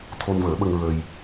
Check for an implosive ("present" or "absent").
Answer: present